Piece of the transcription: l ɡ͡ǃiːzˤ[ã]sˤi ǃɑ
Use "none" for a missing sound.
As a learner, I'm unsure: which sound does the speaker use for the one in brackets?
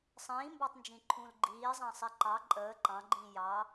ɑ̃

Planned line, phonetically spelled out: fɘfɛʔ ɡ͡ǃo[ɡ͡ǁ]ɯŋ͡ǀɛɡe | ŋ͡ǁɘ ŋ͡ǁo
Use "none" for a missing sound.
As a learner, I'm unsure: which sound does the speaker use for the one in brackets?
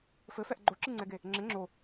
ǁ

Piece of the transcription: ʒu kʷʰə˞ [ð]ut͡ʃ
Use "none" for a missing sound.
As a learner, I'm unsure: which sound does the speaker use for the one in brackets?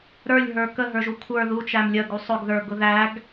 ð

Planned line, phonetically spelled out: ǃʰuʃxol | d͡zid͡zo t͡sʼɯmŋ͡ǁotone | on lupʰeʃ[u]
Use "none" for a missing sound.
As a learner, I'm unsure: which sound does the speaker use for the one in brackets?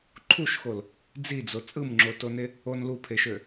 ø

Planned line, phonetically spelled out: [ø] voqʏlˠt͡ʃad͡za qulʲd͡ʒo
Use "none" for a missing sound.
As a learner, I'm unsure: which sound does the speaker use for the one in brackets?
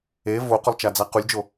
e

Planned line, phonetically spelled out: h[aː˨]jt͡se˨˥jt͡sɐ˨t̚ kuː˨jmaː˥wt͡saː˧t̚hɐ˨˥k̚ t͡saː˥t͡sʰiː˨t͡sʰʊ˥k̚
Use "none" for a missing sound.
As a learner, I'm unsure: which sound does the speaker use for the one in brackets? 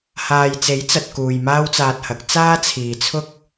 aː˨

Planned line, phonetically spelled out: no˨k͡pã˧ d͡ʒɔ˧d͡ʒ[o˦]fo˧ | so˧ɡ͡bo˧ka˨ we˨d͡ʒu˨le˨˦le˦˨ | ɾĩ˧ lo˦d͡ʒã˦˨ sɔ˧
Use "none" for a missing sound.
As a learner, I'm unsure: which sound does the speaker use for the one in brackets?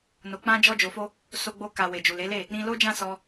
o˨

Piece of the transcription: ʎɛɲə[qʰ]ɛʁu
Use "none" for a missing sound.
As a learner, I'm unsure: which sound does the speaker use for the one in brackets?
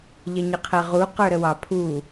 qʰ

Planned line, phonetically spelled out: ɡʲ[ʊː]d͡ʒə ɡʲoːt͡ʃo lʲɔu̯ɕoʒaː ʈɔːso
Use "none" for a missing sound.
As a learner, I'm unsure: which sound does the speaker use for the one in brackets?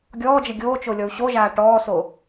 ɔː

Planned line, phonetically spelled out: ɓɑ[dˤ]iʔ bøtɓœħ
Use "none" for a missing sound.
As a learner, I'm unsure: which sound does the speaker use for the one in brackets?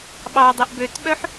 dˤ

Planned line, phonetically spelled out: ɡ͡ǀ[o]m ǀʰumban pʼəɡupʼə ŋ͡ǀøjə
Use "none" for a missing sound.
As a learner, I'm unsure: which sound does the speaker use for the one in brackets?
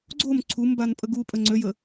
o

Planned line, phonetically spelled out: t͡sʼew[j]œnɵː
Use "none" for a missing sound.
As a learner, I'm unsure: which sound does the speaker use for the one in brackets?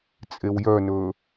j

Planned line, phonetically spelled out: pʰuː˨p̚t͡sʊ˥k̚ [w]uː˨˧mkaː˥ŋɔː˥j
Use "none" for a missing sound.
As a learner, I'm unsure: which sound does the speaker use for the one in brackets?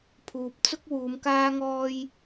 w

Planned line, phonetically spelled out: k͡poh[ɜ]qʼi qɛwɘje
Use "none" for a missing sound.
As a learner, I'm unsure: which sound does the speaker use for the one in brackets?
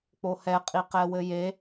ɛ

